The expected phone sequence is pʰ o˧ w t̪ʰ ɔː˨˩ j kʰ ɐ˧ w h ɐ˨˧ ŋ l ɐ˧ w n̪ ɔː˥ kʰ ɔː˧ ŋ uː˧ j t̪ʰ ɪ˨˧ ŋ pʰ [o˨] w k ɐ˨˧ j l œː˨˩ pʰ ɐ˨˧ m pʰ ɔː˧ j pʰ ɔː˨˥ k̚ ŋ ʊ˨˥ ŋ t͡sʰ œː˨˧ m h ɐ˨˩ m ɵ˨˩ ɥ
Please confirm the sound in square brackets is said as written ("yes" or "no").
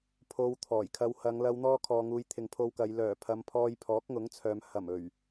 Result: no